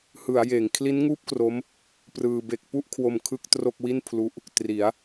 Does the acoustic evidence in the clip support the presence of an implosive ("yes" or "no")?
no